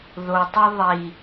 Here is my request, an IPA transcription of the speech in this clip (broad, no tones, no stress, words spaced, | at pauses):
ðotˤi ðˤi